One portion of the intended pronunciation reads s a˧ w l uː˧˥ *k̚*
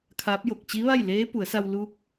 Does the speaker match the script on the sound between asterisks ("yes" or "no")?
yes